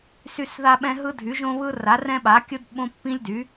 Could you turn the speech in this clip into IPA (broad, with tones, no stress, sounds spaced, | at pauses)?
s y˦ s ð a˦ ɓ ɛ̃˦ ɦ ɯ˦ dʱ y˩˥ ʒ õ˦ β ɯ˦ r a˩˥ r ɛ̃˦ ɓ a˩˥ kʲ ɯ˦ d ɓ õ˦ pː ĩ˦ lʲ d y˩˥